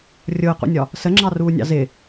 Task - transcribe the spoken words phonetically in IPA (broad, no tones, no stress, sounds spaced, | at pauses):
rʲ ʊː q ṵ nʲ ɒ | s ə ŋ͡ǁ ɑ r uː nʲ ɑ̰ z ɪ